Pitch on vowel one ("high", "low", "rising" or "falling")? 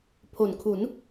low